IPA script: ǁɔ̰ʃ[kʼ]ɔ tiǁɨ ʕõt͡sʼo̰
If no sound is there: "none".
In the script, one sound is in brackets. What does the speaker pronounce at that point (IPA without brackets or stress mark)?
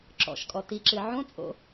kʼ